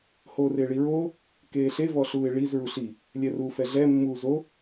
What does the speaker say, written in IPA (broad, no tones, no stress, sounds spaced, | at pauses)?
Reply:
h oː r ɪː ɭ i ɹ oː | k eː ɬ e v ɔ ɬ uː ɪ̯ ɭ i z ɹ u ɬ i | lʲ ɛ r uː f ɛ ɮ ɛ mː uː z o